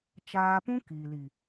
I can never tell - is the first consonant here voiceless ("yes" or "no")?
yes